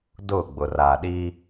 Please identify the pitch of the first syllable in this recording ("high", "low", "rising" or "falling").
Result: falling